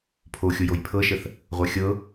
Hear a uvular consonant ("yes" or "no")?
yes